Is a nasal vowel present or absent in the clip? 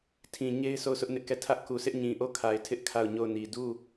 present